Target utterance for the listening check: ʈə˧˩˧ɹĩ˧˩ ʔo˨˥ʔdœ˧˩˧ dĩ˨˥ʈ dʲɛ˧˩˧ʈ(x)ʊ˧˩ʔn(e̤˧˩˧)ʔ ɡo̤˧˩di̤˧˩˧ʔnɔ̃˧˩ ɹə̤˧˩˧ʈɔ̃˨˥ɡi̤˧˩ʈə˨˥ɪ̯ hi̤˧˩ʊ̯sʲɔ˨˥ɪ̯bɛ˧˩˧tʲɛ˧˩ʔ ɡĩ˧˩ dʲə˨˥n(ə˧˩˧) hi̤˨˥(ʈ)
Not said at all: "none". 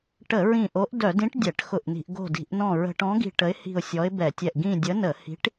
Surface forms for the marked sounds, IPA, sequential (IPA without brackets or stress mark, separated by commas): x, i̤˧˩˧, ə˧˩˧, ʈ